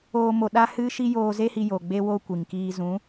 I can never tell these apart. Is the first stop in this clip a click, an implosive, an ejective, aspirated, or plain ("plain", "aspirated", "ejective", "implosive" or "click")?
implosive